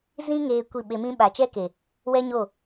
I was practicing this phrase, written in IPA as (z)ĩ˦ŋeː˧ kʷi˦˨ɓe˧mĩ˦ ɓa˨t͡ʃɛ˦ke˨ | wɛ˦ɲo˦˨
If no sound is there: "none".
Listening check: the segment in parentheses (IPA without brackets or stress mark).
z